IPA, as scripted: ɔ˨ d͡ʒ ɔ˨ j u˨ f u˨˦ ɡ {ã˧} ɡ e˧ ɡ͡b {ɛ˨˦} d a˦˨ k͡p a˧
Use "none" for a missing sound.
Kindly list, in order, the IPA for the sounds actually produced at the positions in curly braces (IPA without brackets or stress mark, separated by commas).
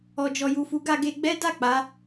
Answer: a˧, ɛ˦